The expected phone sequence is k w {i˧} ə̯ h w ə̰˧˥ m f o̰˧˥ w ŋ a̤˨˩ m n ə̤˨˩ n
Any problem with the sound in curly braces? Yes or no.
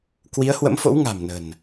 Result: yes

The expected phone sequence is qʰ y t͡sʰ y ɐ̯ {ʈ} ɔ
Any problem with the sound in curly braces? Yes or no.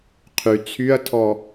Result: yes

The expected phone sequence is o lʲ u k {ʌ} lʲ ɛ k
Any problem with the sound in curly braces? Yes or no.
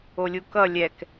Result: no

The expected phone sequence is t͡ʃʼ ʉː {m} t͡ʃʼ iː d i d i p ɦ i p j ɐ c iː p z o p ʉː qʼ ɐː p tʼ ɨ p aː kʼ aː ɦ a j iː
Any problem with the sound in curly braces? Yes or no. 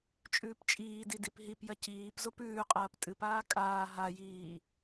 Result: yes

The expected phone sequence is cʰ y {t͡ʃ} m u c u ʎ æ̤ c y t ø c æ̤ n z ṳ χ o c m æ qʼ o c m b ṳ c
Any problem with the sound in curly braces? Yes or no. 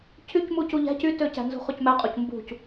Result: yes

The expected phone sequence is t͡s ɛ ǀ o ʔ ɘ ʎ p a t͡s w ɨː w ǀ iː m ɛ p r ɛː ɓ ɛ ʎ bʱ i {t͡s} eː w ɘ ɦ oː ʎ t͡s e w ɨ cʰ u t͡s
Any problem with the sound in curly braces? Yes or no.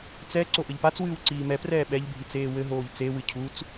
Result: no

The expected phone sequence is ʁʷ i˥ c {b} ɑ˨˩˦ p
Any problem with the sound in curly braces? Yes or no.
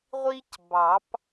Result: no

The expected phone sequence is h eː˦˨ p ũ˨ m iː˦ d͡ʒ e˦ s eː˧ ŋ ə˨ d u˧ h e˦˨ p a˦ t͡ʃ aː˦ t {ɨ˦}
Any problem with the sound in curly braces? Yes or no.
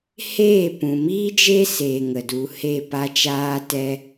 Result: yes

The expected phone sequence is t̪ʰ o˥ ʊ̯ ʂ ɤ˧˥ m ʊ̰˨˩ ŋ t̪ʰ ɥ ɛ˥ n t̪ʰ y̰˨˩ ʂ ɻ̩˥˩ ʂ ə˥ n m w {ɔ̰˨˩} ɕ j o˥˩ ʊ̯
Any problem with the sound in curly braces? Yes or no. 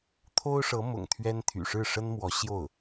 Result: yes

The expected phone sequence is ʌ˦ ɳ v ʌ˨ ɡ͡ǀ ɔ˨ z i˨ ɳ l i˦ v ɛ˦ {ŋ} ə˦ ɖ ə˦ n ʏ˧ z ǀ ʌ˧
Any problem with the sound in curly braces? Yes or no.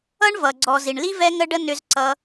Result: no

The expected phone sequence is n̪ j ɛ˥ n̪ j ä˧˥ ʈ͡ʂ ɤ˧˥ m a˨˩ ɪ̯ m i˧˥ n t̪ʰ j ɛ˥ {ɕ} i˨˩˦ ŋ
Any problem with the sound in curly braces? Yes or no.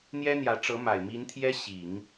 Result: no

